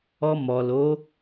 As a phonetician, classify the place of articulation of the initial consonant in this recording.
labial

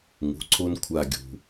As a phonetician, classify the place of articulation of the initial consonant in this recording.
velar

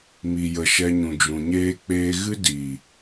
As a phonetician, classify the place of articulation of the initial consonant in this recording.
labial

